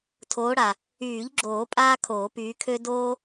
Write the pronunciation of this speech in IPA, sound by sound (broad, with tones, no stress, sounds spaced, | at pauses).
tʰ oː˨˦ ɽ a˩ | yː˨˩˦ ʎ ɡ͡ǁ oː˨˩˦ pʼ aː˥ kʰ oː˨˩˦ p yː˨˦ kʰ ø˥ d oː˥